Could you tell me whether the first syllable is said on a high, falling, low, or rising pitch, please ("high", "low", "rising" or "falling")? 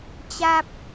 high